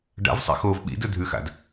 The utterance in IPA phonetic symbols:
ɖ a̰ v sˤ ḛ x oː v ɓ ḭ d ɵ dʱ ʉ x a̰ d

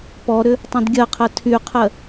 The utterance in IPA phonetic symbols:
p ɔ ɾ ʏ | tˤ õ d ɡʲ ɜ qʰ ɜ tʰ y qʰ ɜ

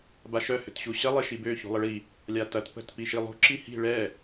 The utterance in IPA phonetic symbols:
b a ʃ œ h ʏ t ɕ u ɕ ɐ lˠ e ʃ i b ø ç ṳ lˠ ə ɭ i | lʲ a t ɐ t p ə̤ t p i ʃ i lˠ ṳ ǁ i h i̤ ɭ ɛ

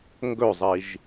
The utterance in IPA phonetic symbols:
ŋ ɡ ɵ zˤ i ʒ

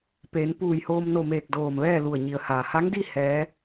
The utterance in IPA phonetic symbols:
p eː˩˧ n p uː˧˩ j h oː˧ m n o˧˩ m eː˧˩ k̚ d oː˧˩ m ʋ ɛː˥˨ l u˧˩ ə̯ ɲ i˩˧ ə̯ h aː˩ h a˧˥ ŋ d i˥˨ h ɛː˧˥

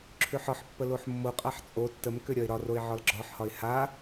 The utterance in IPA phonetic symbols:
ǁʰ ʏ ħ ɒ ħ pː ə l o ħ mː o qʼ a ħ t͡sʼ o tː ə m k ʏ ɾʲ ɒ ɪ̯ ɾ ɒ r o ɪ̯ ʕ ɒ l ɡ͡ǁ ɒ ħ h ɒ ɪ̯ h a

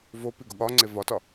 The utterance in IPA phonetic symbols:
v o p i ɡ o ɠ ɒ ŋ͡ǀ e v ɒ t ɒ

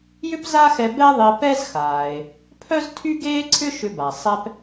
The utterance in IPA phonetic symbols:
j ʏ˥ p z a˥ x ɛ˧ b ɛ˥ ðˤ e˧ p ɛ˥ z x aː˩ e̯ | pʰ œ˥ z tʰ y˥ ɡ eː˥ ǀʰ ʏ˥ ʃ ʏ˧ b a˩ sˤ ɛ˧ p

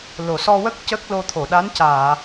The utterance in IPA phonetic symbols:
l o˨˩ s ɔ˧ w ə˦˥ k̚ c ə˦˥ k̚ l o˧ t̪ʰ o˨˩˨ ɗ a˧˥ n c aː˨˩˨

